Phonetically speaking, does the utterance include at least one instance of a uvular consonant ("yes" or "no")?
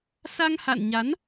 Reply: no